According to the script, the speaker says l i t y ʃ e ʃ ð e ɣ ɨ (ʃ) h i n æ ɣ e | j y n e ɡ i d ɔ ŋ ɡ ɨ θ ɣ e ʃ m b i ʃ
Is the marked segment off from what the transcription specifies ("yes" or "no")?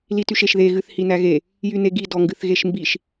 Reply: yes